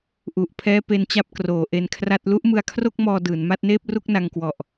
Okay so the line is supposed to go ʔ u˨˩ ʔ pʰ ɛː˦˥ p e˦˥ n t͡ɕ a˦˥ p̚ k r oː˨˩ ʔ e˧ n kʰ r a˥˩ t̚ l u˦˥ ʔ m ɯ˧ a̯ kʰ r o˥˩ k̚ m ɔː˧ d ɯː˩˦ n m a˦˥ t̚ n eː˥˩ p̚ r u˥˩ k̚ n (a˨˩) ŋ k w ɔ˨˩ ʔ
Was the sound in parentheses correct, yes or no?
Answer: no